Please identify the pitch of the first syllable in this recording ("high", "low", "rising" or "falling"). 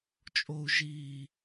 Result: high